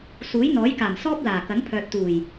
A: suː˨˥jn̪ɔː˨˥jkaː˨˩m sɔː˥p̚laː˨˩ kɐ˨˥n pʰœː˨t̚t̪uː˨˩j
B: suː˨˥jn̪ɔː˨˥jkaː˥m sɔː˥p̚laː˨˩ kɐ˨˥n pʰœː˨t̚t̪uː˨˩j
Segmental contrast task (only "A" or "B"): A